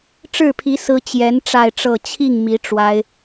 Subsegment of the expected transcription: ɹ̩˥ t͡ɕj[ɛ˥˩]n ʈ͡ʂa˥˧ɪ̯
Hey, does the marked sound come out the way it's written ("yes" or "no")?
no